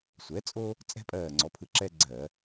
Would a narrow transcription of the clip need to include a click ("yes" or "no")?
yes